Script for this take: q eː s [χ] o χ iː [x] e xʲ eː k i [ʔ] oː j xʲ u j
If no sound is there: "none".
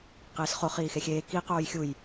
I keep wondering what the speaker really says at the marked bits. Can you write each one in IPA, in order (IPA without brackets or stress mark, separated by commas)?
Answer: χ, x, q